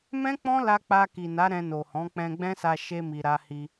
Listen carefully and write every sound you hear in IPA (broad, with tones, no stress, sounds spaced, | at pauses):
m ɛ̃˦ k͡p ɔ̃˦ l a˧ k͡p a˧ k i˨ n a˨˦ ɾ ɛ̃˧ n o˨ h ɔ̃˨˦ k͡p ɛ̃˧ ɡ͡b ɛ̃˦ s a˧ ʃ e˧ m i˨ ɾ a˧ h i˧